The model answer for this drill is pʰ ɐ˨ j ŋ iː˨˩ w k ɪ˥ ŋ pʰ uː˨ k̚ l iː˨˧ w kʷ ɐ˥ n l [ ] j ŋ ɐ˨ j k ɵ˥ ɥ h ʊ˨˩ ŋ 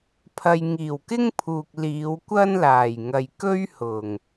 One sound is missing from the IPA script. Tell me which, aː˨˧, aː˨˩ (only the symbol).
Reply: aː˨˩